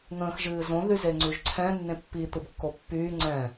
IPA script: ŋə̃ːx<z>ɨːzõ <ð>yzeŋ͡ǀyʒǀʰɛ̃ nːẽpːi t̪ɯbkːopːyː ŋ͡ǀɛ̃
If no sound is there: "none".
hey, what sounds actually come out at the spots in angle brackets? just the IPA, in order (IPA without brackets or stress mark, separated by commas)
ʒ, ð